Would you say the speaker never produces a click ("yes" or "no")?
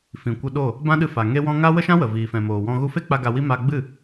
yes